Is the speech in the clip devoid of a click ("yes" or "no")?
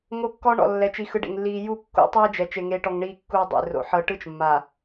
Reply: yes